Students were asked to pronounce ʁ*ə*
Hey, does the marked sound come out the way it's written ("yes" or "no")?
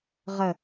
yes